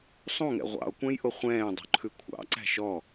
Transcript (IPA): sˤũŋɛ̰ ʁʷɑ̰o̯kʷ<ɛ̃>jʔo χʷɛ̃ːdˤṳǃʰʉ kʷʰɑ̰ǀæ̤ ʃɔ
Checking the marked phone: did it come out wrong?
no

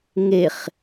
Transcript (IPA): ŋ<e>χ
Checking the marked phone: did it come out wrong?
no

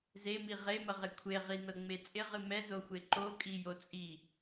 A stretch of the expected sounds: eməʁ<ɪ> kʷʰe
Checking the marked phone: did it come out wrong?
no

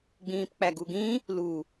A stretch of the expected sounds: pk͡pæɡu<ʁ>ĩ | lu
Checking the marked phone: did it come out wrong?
yes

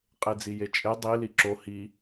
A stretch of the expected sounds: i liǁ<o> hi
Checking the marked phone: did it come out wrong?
no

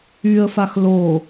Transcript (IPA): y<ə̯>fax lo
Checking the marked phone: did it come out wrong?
no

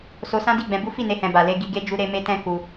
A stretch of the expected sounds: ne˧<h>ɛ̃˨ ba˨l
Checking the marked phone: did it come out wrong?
no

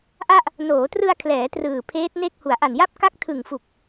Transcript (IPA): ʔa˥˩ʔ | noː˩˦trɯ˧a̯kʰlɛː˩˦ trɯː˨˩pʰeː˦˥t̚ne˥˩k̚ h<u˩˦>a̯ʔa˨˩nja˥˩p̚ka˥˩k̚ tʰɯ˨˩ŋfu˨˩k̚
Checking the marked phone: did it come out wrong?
no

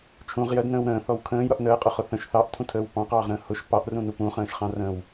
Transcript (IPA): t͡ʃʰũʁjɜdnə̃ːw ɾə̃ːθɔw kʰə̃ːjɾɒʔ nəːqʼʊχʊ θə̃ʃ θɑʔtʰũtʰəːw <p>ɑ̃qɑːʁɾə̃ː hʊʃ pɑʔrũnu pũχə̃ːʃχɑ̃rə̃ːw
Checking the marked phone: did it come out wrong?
no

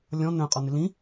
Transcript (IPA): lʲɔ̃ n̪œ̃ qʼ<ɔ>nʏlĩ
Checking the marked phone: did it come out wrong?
no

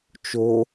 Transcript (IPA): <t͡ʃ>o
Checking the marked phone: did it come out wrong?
no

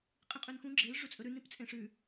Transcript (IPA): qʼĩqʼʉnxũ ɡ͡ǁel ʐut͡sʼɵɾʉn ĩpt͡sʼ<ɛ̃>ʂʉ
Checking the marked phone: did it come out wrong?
yes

